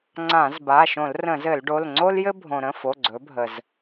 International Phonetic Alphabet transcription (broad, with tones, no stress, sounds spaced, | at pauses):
ŋ͡ǀ ã˧˩˧ z b a˩˧˩ ʃ õ˧˩˧ l r ə̃˧˩˧ z ɘ˧˩˧ l ɖ o˩˧˩ l ŋ͡ǀ o˥ l j ɘ˥ bʱ õ˩ ɾ ə̃˩˧˩ f o˩˧˩ ɡ͡ǀ ɵ˩˧ bʱ ə˩ z